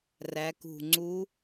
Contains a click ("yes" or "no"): yes